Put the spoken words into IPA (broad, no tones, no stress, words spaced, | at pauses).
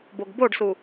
boɡboɖsu